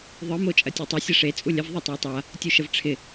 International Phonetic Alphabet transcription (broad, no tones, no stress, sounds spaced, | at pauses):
ðˤ ɯ m o t͡ʃʼ ɐ tʲ e tˤ ɐ sʲ ɐ ʂ e t͡sʼ u lʲ ə v ðˤ ɯ tˤ ɐ j tˤ a | tʲ u ʃ ə v ʈ͡ʂʰ ɪ